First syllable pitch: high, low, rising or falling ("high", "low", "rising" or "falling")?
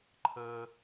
high